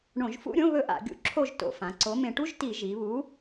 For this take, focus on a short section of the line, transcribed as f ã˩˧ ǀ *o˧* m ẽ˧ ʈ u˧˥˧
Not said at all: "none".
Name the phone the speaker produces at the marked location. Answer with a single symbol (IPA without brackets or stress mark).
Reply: o˨˥